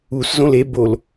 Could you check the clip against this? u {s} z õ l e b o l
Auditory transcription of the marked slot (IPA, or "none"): s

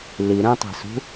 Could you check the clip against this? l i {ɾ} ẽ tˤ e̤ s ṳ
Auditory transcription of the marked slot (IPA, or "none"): ɾ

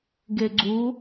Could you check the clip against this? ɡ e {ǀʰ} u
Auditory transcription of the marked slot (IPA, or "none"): ɡ͡ǀ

